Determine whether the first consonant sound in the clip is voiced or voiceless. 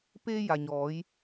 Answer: voiceless